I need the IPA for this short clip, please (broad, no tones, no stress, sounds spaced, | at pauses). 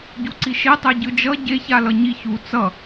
ɟ u ǀ i ʃ e tˤ ɛ ɟ ɯ d͡ʒ ʌ ɟ e ç a l ʌ ɲ i ç u t͡s ʌ